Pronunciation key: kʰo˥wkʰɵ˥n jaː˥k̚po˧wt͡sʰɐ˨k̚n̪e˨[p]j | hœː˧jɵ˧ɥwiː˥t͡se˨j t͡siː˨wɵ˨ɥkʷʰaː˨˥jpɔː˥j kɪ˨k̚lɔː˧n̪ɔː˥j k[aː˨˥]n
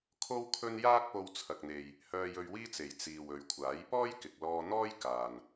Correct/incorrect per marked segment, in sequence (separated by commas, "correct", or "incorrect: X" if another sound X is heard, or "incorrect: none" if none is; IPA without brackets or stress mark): incorrect: none, incorrect: aː˨